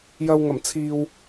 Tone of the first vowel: low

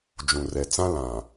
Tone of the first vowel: low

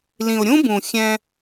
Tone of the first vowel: low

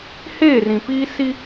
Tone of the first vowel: falling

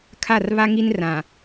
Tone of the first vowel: falling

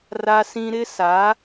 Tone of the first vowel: high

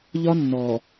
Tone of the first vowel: high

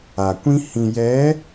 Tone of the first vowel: low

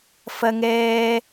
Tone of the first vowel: high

